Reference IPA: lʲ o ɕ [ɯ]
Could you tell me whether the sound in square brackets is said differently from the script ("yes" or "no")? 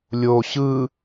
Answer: no